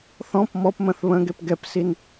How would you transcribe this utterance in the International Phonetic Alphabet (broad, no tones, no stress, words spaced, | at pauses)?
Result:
θɔ̃p mɔpmə̃θ βə̃ɡep ɡɛpsin